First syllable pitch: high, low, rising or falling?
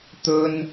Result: high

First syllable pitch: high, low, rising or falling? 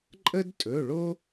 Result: high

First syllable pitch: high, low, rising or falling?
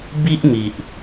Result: high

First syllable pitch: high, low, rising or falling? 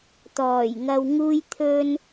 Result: low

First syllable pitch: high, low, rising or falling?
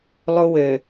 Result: high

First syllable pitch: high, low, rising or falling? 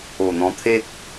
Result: low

